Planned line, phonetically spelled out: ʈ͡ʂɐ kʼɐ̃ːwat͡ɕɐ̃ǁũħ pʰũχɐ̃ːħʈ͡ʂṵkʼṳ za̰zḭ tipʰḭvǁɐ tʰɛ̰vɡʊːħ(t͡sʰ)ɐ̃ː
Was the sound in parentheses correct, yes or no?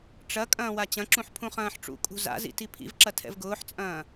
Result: no